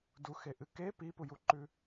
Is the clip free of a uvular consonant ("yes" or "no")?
yes